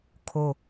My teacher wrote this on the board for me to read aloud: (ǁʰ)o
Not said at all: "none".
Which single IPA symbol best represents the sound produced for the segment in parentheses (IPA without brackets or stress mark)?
kʰ